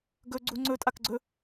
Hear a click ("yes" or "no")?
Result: yes